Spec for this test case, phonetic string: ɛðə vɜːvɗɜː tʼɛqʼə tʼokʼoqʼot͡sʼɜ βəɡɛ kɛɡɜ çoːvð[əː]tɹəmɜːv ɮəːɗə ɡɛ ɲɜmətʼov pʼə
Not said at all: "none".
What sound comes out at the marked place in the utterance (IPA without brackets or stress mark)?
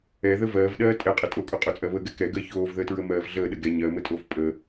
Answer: əː